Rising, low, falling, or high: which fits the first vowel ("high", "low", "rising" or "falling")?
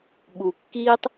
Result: low